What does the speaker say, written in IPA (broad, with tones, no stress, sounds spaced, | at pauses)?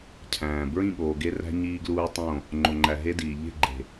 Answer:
cʰ æ̃ː˨ b ɹ ĩ˦˨ ɠ oː˨ ɡ e˦ r æ̤˦ ɲ iː˦ ɡ l uː˦ tˤ õ˦˨ | ŋ͡ǃ o˨ ŋ͡ǃ æ˨ ɦ e˦ d iː˨ ʎ e̤˦˨ ɡ͡ǃ e̤˨